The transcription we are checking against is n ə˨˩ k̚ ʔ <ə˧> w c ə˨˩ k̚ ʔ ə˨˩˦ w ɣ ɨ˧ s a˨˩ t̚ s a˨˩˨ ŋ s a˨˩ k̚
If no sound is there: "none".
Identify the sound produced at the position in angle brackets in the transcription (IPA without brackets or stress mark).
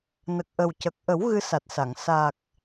ə˨˩